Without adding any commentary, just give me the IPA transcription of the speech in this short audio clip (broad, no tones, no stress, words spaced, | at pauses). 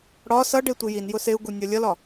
ɽɒ sʌɖe tʷijin jʊseu̯ ɡunʲʌlʲʌlɒ